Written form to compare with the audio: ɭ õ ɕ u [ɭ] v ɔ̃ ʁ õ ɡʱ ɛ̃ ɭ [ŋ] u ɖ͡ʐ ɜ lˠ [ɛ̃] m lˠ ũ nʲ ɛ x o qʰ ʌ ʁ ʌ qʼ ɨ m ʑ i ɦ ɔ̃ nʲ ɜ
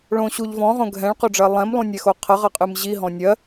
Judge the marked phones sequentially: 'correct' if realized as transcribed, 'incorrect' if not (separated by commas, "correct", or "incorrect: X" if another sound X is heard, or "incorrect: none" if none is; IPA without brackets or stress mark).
incorrect: ʎ, incorrect: q, correct